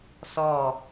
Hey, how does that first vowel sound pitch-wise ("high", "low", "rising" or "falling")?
falling